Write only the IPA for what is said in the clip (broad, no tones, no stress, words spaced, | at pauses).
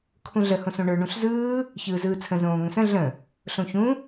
kʰũɮə hõsõɳə˞ ɳũɬzɯː | çɯːzɯːt͡sʰə̃ zõːŋə̃sə̃ ɮə̃ | ɬõçũ